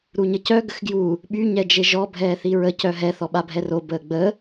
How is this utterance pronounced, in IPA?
ɾ u ɲ ə c œ ɡ ə x ɡ j u | ɓ y ɲ ɛ d͡ʒ e ʒ ɔ bʱ ɛː θ i ɹ ə c œ ɦ ɛ θ ɔ ɓ a bʱ ɛ r o b əː ɡ͡b ə

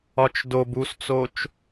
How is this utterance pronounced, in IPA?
ɒ t͡ʃ d o b u s t͡s o t͡ʃ

